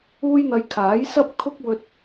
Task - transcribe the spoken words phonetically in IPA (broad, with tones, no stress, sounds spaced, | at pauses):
uː˥ j n̪ ɐ˧ j kʰ aː˨˥ j s ɐ˥ p̚ kʰ ʊ˥ k̚ w ɵ˥ t̚